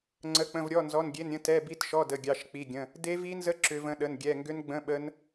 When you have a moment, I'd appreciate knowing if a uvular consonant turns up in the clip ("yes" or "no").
no